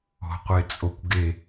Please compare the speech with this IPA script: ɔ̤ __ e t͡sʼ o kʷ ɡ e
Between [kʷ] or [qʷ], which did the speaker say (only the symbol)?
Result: qʷ